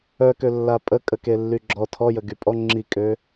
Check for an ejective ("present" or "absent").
present